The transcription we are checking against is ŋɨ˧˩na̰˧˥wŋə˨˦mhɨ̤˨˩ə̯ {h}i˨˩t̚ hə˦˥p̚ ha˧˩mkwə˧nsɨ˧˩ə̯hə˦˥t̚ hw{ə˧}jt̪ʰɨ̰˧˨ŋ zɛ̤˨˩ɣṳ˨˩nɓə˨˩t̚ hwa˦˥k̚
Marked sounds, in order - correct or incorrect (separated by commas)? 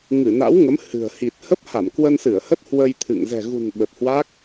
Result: correct, correct